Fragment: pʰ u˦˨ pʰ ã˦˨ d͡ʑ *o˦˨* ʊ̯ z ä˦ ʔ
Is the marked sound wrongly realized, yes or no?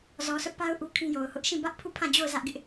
no